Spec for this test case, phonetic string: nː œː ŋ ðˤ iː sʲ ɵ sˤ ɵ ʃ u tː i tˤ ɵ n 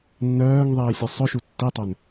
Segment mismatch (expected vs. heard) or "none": none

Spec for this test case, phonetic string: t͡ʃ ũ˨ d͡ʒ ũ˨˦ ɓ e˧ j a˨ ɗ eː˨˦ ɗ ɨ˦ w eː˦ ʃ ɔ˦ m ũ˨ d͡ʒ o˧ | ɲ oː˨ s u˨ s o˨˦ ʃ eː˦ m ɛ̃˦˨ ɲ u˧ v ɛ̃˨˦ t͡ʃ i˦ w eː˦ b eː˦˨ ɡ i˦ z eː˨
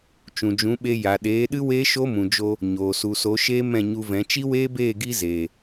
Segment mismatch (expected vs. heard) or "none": ɔ˦ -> o˦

